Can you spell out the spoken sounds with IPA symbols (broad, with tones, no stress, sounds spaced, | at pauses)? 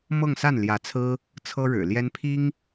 m ɤ˥˧ ŋ s a˥˩ n l j ä˧˥ t͡sʰ ɹ̩˥ | t͡sʰ ɤ˥ ɻ ɻ̩˨˩ l j ɛ˥ n pʰ i˥ ŋ